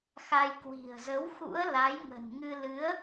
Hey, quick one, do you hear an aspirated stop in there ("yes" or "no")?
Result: no